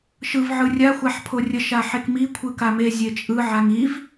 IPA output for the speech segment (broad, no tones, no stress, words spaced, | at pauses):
ʃɯv ʕɯrʲa xʷaħpʰorʲə ʃaħekmi kʷʰɯkame zʲet͡ʃʼɯ ʕaŋiv